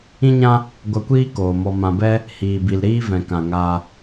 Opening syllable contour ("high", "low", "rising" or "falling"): high